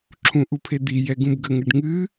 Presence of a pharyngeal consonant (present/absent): absent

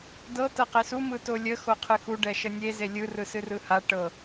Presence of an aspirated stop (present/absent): present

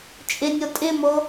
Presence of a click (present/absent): absent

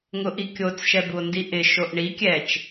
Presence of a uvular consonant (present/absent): absent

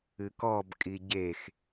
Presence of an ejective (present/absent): present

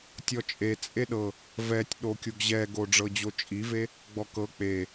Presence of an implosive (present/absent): present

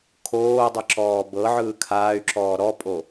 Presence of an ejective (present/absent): present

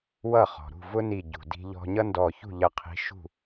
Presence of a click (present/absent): absent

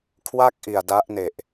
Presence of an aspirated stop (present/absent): present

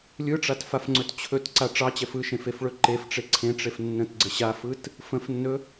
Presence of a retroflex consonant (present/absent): present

